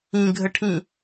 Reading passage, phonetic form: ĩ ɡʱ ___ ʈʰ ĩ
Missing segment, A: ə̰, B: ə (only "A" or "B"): B